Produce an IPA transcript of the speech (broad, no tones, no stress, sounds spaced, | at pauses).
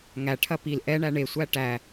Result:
ŋ æ ʈʰ ɐ p i l ʔ ɛ ɳ æ ɳ e sʷ æ ʈ æ